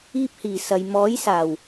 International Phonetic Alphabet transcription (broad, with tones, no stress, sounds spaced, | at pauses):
iː˧ p̚ h iː˨˩ s ɐ˨ j m ɔː˨˥ j s aː˨˩ w